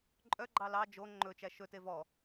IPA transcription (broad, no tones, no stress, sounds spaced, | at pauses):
ǃʼ œ ɡ͡ǃ ɑ l ɑ d͡ʒ o ŋ͡ǃ ɵ t͡ʃ æ ʃ ɵ t e v ɔ